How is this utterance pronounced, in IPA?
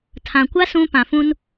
tʰ ã˨ kʷ a˦ s ũ˦ p ã˨ f ũ˦ n

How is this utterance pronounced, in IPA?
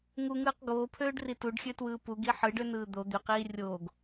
ŋ u ŋ ɯː q ɡ oː pʰ øː ɖ r i t u ɖ xʲ ø t w ɯː p u ɡ i ħ ɯ ɖ ø n ɯː d̪ o d̪ y q iː rʲ oː ɡ

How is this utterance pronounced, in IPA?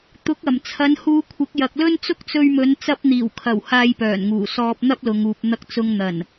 t̪ ʊ˨˥ k̚ ɐ˨˩ m t͡sʰ ɐ˨˧ n h uː˧ kʷʰ ɪ˨˥ k̚ j ɐ˨ k̚ l ɵ˥ n t͡s ʊ˥ k̚ t͡s ɵ˧ ɥ m ɵ˨˧ n t͡s ɐ˧ p̚ n̪ iː˨˩ w kʰ ɐ˨˩ w h aː˧ j p œː˨˩ n ŋ uː˨˩ s ɔː˧ p̚ n̪ ɐ˥ p̚ l ʊ˨ ŋ uː˨ p̚ n̪ ɐ˧ k̚ t͡s ʊ˧ ŋ n̪ ɐ˨˩ n

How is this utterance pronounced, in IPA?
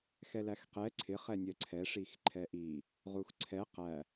x ɛ l æ x q ɛ ǀʰ ɪ χ ɛ nʲ ɜ ǀʰ ɛ ʂ i x ǃʰ ɛ ʔ i | ʁ u x ǀʰ ɛ q æ

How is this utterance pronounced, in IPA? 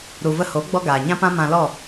ɾ u˨ v ə˧ h o˨˦ ɡ͡b ɔ˦ ɡ aː˨ ɲ ã˦ p ã˦ m ã˧ l ɔ˦˨

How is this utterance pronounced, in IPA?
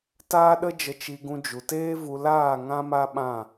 t aː˦ ɗ ə˦ d͡ʒ ə˧ t͡ʃ i˧ ɡ ũ˧ d͡ʒ u˨ t eː˦ v u˧ l aː˦˨ ŋ ã˦ m a˦ ɓ ã˦˨

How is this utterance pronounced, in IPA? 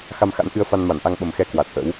x a˧ m x a̰˧˥ n ʔ ɨ˧ ə̯ f a˧ n m a˧˩ n ʔ a˧ ŋ ɓ ə˨˩ m x ɛ˧ k w a˨˩ t̚ ʔ ə̰˧˥ w

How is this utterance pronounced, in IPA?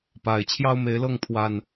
p a˨˩ ɪ̯ t͡ɕʰ j ɑ˦ ʊ̯ m e˨˦ ɪ̯ l ɤ˥˨ ŋ pʰ w a˨˩ n

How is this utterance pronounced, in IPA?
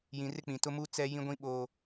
j ĩ˨ r ɪ˦ k͡p ĩ˨ t ʊ˦ m u˦ t͡s ɛ˦ j ĩ˦ ɡʷ ĩ˦ ɓ oː˦

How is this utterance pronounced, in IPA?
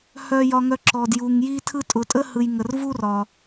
h œ˨ j ɒ˨ ŋ œ˨ ǁ ɔ˩ d j u˩ ŋ j i˦ tʰ ɯ˦ tʼ ʊ˨ tʼ ə˥ h ɯ˨ j ŋ ə˩ r v u˥ r ɒ˩

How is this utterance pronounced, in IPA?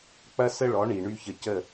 k͡p ɐ˥ s ə˥ ɭ ɔ˩˥ ɳ i˩ ɳ y˥ ç ə˧ c ə˥˩

